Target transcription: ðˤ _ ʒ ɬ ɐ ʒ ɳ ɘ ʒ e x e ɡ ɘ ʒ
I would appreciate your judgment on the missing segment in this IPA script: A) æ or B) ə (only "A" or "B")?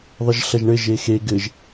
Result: B